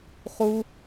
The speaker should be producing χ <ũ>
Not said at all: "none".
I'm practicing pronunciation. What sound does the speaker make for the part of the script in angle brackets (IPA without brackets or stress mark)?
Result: u